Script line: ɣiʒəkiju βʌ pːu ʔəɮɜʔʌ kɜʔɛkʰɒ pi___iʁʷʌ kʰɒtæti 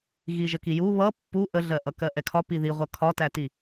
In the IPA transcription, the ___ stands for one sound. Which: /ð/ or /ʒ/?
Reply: ð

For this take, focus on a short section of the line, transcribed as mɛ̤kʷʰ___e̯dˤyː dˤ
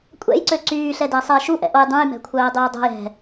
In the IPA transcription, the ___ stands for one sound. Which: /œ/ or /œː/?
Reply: œː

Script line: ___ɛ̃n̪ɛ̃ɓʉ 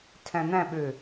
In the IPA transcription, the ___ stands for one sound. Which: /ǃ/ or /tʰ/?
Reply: tʰ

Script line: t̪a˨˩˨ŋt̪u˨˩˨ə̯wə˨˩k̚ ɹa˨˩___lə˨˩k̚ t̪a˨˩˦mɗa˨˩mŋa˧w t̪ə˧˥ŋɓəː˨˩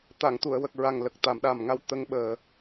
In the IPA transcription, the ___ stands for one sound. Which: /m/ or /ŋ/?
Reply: ŋ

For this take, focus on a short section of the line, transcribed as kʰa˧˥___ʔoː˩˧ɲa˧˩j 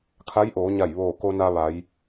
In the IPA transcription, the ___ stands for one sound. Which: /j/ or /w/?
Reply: j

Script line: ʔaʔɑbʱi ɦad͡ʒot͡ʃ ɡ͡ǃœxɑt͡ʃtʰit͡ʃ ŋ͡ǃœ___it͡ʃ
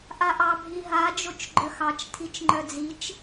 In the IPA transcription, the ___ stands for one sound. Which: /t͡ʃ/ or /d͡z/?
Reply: d͡z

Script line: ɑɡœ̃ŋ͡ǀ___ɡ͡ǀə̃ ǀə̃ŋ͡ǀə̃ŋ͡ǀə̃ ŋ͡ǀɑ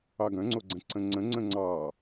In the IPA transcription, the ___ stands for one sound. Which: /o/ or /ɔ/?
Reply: o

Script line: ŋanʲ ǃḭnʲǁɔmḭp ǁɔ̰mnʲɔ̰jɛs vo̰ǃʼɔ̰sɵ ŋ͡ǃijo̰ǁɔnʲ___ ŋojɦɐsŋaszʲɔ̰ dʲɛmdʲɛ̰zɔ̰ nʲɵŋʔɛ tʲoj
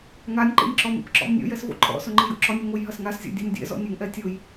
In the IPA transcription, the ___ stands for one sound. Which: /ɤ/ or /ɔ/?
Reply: ɔ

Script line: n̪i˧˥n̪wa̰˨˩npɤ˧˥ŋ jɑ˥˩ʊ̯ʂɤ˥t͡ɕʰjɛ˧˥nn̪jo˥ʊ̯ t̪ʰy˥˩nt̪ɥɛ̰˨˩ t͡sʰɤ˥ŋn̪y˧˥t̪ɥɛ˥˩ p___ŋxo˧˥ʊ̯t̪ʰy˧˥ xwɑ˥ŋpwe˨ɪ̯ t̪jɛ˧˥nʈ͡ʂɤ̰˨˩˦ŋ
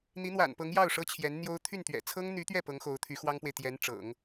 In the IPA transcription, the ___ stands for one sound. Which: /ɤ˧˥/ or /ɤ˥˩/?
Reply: ɤ˧˥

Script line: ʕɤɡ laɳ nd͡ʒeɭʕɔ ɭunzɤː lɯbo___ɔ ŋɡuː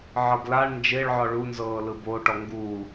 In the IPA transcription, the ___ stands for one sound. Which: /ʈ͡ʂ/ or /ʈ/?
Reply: ʈ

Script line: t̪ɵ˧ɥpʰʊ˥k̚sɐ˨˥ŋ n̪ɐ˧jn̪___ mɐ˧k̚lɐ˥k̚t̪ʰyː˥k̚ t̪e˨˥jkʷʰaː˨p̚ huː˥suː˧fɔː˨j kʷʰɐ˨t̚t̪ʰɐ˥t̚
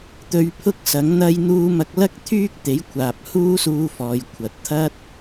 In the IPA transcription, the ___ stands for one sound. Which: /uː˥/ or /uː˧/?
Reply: uː˧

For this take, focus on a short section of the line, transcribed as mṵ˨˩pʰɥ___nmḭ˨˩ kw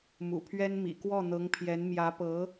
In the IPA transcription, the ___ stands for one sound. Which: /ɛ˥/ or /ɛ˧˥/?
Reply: ɛ˥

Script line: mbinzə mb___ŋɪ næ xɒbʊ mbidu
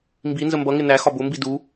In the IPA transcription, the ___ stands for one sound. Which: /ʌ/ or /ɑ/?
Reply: ʌ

